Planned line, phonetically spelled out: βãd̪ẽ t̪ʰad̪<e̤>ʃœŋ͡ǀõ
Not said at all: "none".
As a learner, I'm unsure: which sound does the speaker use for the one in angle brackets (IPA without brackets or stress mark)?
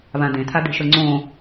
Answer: e̤